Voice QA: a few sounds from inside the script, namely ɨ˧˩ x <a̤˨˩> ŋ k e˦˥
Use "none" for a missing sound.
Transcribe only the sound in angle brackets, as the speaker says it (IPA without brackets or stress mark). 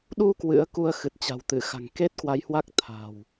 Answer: a̤˨˩